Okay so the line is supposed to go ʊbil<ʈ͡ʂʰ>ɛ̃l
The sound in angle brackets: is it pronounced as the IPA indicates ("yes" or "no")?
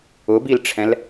yes